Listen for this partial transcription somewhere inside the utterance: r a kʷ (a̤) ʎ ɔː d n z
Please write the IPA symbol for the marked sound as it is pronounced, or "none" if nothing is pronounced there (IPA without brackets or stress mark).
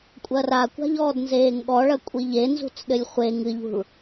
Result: a̤